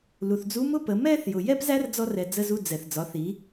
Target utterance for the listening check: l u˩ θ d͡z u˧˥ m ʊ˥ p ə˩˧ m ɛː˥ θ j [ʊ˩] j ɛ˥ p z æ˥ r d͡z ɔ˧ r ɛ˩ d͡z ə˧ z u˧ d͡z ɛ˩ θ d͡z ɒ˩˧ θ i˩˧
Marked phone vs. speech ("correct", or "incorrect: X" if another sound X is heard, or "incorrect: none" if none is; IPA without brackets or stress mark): correct